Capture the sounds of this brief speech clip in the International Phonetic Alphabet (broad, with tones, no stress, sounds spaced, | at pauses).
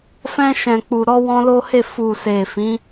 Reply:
f ɛ̃˧ ʃ ɛ̃˨ k͡p u˨ ɾ ɔ˧ w ɔ̃˧ l o˦ h e˦˨ f u˨ s e˨ f ĩ˨˦